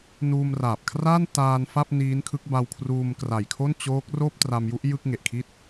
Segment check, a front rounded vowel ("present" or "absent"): absent